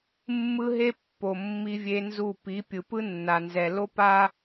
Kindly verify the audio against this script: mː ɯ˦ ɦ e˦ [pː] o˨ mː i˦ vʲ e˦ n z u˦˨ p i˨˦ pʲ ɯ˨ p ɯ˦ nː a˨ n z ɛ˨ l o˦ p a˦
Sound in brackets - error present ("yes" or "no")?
no